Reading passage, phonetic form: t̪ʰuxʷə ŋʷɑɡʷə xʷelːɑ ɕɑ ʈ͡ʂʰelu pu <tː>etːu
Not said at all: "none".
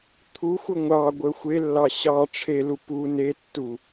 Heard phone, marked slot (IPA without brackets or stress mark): n